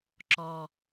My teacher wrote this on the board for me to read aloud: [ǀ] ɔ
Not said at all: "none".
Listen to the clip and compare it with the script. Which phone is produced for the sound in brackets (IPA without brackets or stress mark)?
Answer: ǁ